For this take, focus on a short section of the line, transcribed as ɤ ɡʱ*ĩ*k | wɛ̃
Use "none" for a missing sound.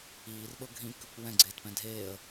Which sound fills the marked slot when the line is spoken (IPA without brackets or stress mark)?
ĩ